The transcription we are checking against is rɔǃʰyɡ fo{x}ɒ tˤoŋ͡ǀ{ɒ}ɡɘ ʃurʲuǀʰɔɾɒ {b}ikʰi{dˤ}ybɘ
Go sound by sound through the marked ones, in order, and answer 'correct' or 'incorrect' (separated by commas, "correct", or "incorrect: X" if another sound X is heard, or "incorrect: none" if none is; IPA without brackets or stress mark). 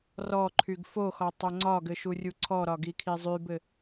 correct, correct, incorrect: ɡ, incorrect: zˤ